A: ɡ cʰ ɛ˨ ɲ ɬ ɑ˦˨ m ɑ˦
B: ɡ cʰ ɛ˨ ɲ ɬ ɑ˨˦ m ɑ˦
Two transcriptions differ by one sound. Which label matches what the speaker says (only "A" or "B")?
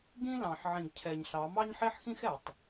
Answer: B